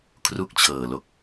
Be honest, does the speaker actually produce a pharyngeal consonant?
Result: no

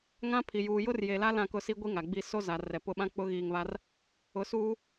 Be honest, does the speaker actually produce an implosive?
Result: yes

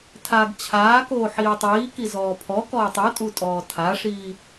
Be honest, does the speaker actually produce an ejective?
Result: yes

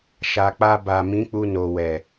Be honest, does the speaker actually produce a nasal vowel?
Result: yes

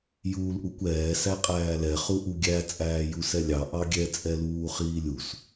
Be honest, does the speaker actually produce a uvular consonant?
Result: yes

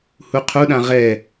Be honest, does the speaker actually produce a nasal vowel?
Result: yes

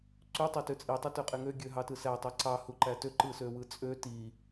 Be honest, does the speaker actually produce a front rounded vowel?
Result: yes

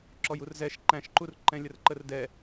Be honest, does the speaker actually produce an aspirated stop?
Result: no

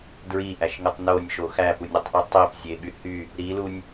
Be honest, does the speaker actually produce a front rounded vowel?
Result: yes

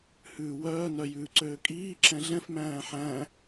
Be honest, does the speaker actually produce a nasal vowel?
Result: yes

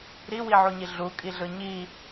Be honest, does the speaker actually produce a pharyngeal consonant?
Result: yes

